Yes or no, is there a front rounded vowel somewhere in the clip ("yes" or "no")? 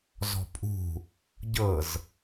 no